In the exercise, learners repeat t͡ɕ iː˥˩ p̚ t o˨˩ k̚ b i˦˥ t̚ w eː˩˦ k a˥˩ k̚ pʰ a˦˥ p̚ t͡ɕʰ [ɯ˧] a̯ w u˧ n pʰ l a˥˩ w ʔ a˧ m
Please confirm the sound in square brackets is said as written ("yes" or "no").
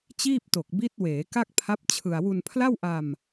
yes